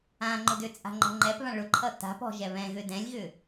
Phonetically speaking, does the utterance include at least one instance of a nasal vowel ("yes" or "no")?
yes